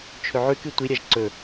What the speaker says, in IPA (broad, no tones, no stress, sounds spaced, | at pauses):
t͡ʃʰ ɵ ʕ ʉ k ɨ tʷ i ɾʲ a ʒ ǀ ɵ